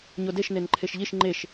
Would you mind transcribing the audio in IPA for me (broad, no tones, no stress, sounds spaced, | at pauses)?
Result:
ɲ o d e ʃ n e n ǃʰ e ʃ ʎ i ʃ ŋ͡ǃ e ʃ